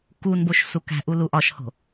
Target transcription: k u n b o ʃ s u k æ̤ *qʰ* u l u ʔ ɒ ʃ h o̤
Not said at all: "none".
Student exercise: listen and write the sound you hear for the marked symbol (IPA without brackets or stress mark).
ʔ